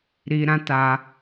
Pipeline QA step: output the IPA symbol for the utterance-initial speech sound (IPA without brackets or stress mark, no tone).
ɾ